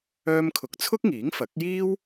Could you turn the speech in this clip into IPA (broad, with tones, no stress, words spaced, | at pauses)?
œː˥mkʰʊ˧k̚ t͡sʰʊ˥k̚ŋiː˨˥ŋfɐ˨˥k̚jiː˥w